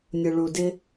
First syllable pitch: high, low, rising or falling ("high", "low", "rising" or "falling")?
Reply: low